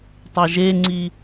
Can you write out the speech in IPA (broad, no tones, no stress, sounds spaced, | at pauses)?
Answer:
tˤ e ʒ e ŋ͡ǀ i